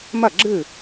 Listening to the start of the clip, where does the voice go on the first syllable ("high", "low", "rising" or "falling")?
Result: falling